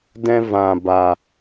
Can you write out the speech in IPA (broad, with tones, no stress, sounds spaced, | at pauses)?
d ɛ̃˦ v ã˧ b a˧